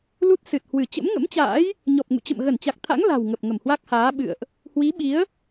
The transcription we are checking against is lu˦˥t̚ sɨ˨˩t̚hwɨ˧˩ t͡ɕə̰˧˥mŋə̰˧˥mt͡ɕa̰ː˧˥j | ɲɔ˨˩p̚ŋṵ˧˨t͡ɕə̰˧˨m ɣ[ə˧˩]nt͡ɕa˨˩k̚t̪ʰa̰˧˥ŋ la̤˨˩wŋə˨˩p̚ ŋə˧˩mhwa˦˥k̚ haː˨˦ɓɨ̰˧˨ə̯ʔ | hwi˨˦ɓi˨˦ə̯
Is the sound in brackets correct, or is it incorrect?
correct